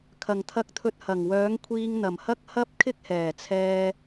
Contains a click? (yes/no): no